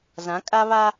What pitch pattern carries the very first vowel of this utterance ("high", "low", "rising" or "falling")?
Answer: rising